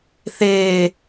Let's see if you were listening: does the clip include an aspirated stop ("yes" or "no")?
no